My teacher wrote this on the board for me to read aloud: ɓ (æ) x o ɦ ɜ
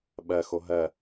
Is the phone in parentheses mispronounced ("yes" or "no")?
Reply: yes